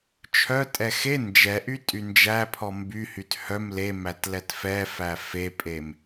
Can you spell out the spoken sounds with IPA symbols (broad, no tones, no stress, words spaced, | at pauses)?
t͡ʃʰœ tʼɛxe nd͡ʒɛʔy tʼynd͡ʒæ pʰɔmby hythœm lemætlɛt fɛfæ fepʼem